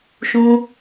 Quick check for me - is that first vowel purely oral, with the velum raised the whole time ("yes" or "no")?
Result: no